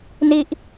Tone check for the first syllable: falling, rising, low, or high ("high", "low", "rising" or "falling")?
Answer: falling